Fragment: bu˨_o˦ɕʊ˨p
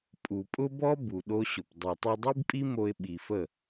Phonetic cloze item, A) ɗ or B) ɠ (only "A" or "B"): A